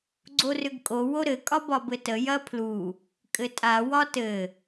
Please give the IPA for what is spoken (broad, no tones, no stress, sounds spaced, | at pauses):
ɡ͡ǀ o r ʏ ɡ kʼ o w o ɾ ɘ kʼ ɒ b ɒ b ɘ t ə j ɐ pʰ l u | kʼ ɘ tʼ a w ɒ t ɘ